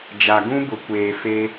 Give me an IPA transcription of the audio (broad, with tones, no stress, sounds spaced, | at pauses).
d͡ʒ a˨ ɡ ũ˦ b ʊ˨˦ kʷ eː˨ f e˦